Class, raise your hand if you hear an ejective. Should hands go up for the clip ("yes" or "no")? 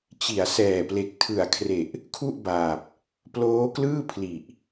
no